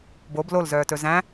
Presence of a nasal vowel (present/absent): present